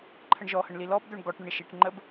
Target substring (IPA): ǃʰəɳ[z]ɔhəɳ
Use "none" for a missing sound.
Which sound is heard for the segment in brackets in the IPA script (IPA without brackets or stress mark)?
ʒ